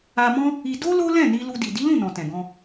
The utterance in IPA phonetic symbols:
a˧ m ɔ̃˦ | i˧ d o˦ l o˦ l ɛ̃˦˨ n i˧ l u˧ d i˨ d i˨˦ l ũ˦˨ n ɔ̃˨ t ɛ̃˨ ɡ ɔ̃˧

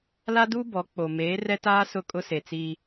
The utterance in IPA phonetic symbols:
l a˦ d u˦ b ɔ˨˦ k͡p o˨ m eː˨˦ r ɛ˦ t aː˦ s ʊ˦˨ kʼ ʊ˦ s e˨ t͡s iː˦

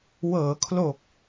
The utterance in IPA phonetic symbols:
w ɤː˩˦ kʰ l o˨˩ k̚

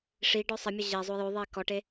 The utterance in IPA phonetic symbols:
ʂ i ɖ ɔ sˤ ɐ mʲ ɐ ʑ ɛ zˤ o j o ðˤ ɛ i̯ k ɔ ʈ e

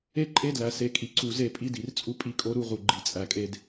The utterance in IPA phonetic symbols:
e˦ ǃʼ e˦ d l æ˨ s e˨ kʼ i˨ ǀ u˨ z e˦˨ pʼ i˦ d i˨ r t͡sʼ u˦ pʼ i˦ kʼ o˦ ɾ u˦ ʁ u˨ ɡ͡ǃ i˨ t͡sʼ æ˨ kʼ e˦ d

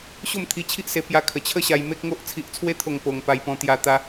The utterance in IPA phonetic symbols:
ɕ o˥˧ m t̪ʰ i˧ t͡ɕʰ i˦ ʔ s e˧ p j a˧ kʰ ə˨˩ t͡ɕʰ ə˦ ɕ a˧ j m e˦ k̚ ŋ o˦ ʔ t͡sʰ i˨ ʔ t͡sʰ w e˧ t̪ʰ o˨˩ ŋ p o˧ ŋ p a˧ j p ɔ̃˧ t̪ j a˧ t̪ a˧

